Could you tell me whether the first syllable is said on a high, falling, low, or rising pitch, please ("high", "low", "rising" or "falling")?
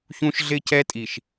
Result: high